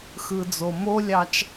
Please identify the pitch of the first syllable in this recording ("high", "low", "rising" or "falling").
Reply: low